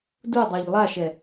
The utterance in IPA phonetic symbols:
d u dˤ ø ʎ lˠ a ʃ ɛ

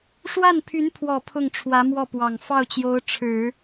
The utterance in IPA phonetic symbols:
ʂ w a˥˩ n pʰ y˧˥ n pʰ w ɔ˨˩ pʰ ʊ˥˩ ŋ ʈ͡ʂʰ w ä˧˥ m w ɔ˥˩ p w ɑ˨˩ ŋ f ɑ˥˩ ʊ̯ t͡ɕ j o˧˥ ʊ̯ ʈ͡ʂʰ ɻ̩˨˩˦

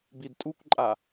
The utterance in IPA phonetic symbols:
b i d tʼ u kʷ ǃʼ a

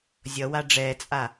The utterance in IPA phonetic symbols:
zʲ ʌ w a ɖ͡ʐ ɛː t͡sʼ a

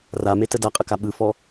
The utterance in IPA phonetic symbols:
r a m e t ə d a qʼ ə k a ɓ ɯ f ɔ

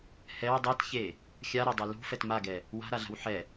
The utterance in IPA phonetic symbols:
h ɛ w dˤ e t ç e | xʲ a ɾ ɒ dˤ i l ṳ f ɛ t m a ɡ ɛ | w a̤ ɾ a ɮ a̤ w ħ ɛ

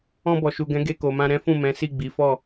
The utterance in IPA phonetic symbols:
ɔ̃˧ b ɔ˨ ʃ u˨ ɡ ɛ̃˨˦ ɡ e˧ k o˨ m ã˧ ɾ ɛ̃˦ f ũ˦˨ m ɛ̃˨˦ s i˦˨ ɡ͡b i˨˦ f ɔ˦˨

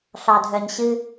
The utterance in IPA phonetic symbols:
ɬ ɑ˨ dʱ œ˨ ɲ ɕ ɨ˦

